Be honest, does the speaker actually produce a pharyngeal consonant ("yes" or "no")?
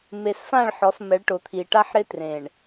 yes